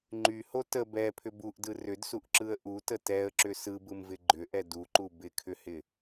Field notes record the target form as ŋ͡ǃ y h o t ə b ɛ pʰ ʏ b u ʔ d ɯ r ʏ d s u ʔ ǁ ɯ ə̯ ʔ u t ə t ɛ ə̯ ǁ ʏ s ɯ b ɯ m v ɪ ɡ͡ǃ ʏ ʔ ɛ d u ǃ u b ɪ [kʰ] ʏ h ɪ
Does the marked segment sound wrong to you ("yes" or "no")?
no